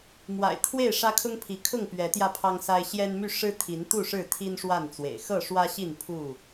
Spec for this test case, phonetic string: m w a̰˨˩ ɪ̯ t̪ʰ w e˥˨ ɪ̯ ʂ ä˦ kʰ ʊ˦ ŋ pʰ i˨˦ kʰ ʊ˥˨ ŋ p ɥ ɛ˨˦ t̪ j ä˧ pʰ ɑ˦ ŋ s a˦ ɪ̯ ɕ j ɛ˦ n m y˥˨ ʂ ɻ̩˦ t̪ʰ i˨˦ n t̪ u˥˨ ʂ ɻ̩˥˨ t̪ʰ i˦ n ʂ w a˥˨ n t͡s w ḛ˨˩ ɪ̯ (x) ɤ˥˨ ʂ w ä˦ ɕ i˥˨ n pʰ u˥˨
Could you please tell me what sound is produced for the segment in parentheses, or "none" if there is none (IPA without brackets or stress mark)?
x